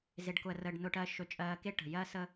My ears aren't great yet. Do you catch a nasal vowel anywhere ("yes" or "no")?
no